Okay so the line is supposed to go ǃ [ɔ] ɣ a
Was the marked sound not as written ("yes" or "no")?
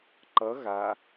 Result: yes